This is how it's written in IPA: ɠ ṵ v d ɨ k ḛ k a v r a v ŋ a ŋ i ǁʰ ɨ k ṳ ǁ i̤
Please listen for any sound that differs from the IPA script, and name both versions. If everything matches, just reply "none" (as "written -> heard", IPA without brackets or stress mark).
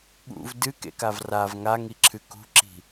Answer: none